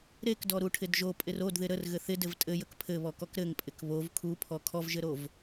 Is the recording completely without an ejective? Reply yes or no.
no